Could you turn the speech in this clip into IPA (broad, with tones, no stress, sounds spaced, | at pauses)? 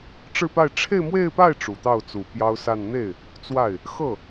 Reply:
ʈ͡ʂ ɻ̩˥˧ p a˥˧ ɪ̯ ʈ͡ʂʰ e˥˧ ɪ̯ m w e˥˧ ɪ̯ p a˥˩ ɪ̯ ʈ͡ʂ u˨˩ t̪ ɑ˥˩ ʊ̯ t͡s u˨˩ p j ɑ˥ ʊ̯ s a˥˧ n n̪ e˥˩ ɪ̯ | t͡s w a˥˩ ɪ̯ | x ɤ˥˩